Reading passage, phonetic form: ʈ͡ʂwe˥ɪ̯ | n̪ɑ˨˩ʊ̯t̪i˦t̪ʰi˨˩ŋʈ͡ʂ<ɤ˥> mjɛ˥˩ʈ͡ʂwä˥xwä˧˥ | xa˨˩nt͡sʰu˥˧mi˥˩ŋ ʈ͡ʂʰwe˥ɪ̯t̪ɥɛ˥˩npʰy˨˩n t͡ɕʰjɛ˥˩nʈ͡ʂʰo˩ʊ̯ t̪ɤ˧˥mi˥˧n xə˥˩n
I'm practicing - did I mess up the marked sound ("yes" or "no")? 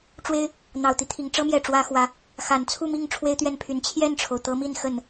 no